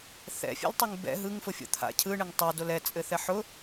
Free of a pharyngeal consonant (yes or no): no